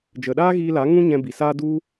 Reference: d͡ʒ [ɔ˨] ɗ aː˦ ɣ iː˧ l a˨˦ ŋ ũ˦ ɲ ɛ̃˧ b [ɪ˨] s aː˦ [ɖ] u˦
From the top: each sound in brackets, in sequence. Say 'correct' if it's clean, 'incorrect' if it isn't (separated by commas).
incorrect, incorrect, incorrect